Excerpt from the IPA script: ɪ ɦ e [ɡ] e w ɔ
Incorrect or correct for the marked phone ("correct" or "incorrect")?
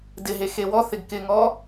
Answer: incorrect